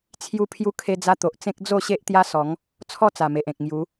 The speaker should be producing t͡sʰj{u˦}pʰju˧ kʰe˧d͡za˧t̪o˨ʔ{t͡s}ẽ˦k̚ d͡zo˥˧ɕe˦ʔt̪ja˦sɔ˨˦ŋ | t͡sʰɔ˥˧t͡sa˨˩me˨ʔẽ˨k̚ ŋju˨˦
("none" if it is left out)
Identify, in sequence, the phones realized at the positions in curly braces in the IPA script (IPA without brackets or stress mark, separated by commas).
u˧, t͡s